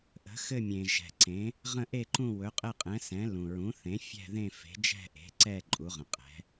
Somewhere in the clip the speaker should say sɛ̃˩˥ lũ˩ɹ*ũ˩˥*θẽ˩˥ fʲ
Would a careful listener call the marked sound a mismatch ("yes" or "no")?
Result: no